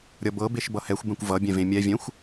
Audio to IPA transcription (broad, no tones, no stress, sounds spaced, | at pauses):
ɾʲ ʌ b ɤ b e ʃ b ʌ h ɛ xʷ b ɛ̃ kʷ v ʌ bʲ ɛ̃ v ẽ mʲ ɛ vʲ ɛ̃ xʷ